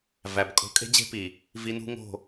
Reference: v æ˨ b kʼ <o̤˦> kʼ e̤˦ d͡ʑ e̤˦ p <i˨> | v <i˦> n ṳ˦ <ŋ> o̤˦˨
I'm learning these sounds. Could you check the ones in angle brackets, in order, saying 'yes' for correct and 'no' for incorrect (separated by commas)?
yes, yes, yes, yes